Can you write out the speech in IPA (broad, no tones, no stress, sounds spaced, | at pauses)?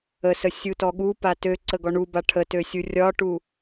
ə s ə sʲ u t ɔ ɠ u p a t ø ǀ ə ɡ ɔ ɳ u b a ʈʰ ə t ø sʲ u rʲ ɒ ʈ u